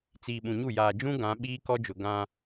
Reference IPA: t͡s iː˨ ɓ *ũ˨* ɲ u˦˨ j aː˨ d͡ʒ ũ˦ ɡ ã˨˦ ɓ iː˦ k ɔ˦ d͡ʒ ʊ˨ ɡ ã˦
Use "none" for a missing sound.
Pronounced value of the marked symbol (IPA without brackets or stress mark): ũ˨